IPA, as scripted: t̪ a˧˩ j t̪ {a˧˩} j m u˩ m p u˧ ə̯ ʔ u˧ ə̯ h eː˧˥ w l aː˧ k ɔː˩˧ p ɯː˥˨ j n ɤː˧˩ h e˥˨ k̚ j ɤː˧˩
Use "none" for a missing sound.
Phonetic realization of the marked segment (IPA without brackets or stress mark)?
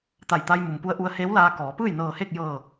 a˧